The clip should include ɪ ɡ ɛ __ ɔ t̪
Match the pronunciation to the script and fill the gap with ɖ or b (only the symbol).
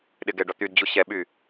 ɖ